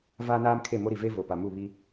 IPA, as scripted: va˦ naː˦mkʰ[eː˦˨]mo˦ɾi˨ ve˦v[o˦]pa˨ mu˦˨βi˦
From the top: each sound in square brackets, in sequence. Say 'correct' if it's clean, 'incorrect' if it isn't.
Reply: incorrect, incorrect

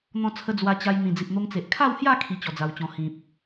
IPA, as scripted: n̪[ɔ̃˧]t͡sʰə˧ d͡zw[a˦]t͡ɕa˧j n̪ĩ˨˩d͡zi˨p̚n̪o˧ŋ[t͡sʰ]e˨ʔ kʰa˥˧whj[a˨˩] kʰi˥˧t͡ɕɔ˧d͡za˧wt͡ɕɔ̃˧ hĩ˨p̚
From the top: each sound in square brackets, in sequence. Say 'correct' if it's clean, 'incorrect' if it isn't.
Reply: correct, incorrect, incorrect, incorrect

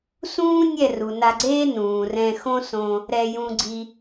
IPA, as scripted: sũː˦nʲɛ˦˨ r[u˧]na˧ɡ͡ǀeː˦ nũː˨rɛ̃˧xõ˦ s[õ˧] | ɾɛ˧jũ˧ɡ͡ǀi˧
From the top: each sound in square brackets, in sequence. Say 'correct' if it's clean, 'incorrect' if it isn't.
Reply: incorrect, correct

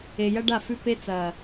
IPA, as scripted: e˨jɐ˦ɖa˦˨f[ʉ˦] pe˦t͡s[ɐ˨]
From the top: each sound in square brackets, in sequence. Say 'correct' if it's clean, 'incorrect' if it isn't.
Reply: correct, incorrect

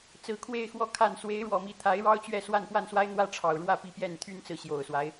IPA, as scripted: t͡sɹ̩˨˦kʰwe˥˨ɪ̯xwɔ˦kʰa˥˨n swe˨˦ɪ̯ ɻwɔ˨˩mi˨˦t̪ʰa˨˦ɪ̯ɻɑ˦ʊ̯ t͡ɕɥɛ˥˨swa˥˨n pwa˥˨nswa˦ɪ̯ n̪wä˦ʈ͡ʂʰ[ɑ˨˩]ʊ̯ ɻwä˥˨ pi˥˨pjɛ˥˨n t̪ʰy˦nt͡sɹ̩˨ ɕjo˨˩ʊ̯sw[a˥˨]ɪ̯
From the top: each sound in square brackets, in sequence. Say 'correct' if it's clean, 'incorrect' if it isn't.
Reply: correct, incorrect

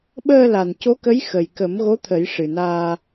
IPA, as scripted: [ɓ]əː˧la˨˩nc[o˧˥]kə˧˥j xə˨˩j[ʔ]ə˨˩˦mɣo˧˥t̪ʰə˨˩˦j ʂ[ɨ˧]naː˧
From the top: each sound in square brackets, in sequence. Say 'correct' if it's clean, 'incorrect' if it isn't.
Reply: correct, correct, incorrect, incorrect

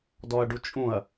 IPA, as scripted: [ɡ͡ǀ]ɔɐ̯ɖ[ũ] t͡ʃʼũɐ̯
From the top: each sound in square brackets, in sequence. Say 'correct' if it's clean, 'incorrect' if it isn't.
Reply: incorrect, incorrect

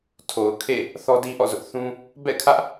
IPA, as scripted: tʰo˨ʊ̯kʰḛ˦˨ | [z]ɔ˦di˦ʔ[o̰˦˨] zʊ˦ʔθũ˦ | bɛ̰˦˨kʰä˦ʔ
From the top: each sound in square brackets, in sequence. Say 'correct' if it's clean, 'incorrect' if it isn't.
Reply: incorrect, incorrect

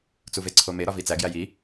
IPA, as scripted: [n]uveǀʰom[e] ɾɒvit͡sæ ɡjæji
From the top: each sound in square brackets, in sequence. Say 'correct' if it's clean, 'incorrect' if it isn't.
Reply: incorrect, correct

